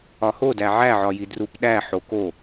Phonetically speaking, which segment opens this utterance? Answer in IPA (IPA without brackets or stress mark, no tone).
ɒ